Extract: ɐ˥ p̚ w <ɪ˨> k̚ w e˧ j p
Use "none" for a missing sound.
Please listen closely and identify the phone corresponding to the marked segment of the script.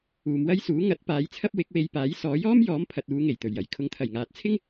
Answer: ɪ˨˥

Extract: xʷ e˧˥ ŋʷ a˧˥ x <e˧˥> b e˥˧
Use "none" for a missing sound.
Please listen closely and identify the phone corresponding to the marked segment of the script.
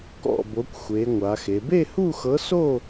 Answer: e˧˥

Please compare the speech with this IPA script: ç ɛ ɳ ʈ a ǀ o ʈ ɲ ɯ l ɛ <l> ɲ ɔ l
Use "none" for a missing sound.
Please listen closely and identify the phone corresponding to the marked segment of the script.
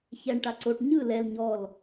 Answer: l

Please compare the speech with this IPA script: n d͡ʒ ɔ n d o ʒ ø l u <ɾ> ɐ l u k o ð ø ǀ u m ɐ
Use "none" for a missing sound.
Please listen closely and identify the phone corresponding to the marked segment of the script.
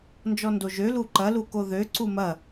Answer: ǃ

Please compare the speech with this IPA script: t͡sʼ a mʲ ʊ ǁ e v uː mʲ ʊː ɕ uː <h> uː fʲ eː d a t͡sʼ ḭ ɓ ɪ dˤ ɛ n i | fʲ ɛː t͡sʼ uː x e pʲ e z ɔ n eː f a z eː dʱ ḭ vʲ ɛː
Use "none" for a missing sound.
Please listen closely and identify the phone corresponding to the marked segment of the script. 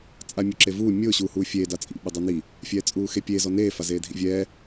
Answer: h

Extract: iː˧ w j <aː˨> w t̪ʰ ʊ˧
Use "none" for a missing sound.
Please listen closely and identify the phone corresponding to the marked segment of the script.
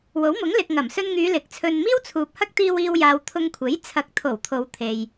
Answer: aː˨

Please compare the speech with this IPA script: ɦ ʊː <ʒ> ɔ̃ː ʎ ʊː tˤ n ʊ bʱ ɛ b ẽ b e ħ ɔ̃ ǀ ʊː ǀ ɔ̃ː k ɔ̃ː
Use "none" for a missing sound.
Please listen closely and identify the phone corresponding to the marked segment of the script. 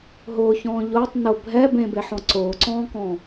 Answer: ç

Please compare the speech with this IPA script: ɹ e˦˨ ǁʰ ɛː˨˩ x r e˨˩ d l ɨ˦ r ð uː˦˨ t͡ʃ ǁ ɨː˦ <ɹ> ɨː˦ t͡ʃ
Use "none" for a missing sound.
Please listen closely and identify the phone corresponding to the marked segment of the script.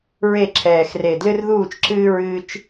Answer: ɹ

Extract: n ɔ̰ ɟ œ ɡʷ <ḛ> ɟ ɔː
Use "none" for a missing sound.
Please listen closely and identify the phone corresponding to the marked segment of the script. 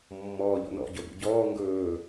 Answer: ḭ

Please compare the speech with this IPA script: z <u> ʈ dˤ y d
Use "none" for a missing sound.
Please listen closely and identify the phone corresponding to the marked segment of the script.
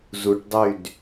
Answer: u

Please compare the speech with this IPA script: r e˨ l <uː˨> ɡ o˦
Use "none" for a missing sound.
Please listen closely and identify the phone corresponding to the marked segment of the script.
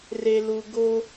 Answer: u˨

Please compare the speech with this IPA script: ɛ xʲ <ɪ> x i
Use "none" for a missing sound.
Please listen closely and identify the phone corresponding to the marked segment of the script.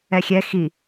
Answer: ɛ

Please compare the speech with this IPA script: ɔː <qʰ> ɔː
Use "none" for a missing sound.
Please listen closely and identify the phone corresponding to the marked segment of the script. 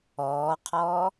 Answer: qʰ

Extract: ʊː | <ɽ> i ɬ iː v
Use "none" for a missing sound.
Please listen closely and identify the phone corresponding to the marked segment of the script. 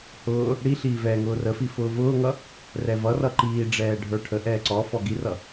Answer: ɽ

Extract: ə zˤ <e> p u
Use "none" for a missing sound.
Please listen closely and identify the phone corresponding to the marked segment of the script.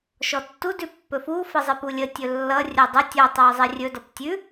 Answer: e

